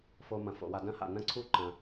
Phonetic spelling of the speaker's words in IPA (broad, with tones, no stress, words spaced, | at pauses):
fo˨ mɐ̃˩fo̰˩wa˨ dɐ̃˥ha̰˩ nɐ̃˥ǀʰu˥ ǃɐ̃˨